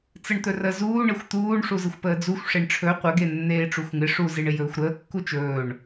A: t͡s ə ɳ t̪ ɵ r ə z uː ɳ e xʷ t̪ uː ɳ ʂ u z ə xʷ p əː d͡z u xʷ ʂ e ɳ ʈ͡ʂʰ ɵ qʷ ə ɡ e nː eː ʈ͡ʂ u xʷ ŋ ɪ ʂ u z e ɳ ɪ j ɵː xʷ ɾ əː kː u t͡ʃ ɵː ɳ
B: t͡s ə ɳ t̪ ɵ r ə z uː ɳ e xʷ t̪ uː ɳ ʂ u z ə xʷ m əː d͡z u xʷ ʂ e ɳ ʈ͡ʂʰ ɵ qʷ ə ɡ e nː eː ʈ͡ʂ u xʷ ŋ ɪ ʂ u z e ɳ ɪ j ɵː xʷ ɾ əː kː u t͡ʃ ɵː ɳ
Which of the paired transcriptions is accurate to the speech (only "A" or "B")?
A